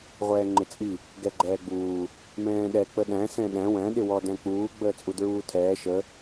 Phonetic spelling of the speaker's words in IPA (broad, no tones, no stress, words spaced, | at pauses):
ʁʷɛːŋ͡ǃɪt͡sʼi | ɡɛɡ͡ǃɛːɡ͡buː | mɛ̃ːɗɛ k͡pəɗæ̃ sɛ̃ɗæ̃ wæ̃ ɗɪwɔ dæ̃k͡puː ɡ͡bəːt͡sʼudɹuːtʰɛː ʃə